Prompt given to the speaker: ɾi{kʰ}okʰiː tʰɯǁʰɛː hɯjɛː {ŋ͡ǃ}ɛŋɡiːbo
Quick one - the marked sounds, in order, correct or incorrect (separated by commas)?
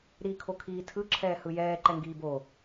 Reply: correct, incorrect